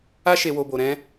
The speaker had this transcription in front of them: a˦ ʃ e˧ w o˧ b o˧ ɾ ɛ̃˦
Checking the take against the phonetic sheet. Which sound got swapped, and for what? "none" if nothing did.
none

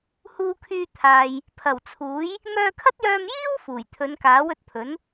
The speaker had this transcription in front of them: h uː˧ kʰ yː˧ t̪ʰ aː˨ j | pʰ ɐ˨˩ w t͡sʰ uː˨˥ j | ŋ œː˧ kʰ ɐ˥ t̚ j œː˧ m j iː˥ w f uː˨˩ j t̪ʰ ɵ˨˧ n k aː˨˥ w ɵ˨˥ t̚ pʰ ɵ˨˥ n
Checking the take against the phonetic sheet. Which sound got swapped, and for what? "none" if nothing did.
none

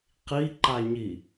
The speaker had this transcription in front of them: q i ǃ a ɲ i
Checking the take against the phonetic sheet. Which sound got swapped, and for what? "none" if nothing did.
none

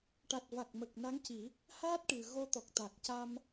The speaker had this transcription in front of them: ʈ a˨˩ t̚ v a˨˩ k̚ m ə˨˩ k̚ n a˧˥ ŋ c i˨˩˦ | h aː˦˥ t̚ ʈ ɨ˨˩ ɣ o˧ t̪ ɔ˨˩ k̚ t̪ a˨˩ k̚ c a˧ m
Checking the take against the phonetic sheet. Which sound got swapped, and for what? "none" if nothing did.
none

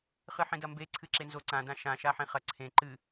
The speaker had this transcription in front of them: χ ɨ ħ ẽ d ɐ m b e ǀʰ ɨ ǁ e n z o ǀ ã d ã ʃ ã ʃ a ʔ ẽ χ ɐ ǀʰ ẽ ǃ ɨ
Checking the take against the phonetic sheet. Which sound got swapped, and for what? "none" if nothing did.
ʔ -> ħ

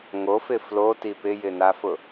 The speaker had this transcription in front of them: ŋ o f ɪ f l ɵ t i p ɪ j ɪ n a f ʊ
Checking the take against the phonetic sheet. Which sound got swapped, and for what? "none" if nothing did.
ɵ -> o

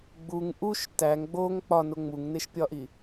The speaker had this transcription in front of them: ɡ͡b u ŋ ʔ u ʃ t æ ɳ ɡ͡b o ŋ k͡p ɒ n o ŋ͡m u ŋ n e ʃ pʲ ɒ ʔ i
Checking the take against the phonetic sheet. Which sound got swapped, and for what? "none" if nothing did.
ɳ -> ŋ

